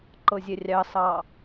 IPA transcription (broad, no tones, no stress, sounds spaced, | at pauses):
ǃ ɤ zʲ ɛ rʲ ɑ s ɑ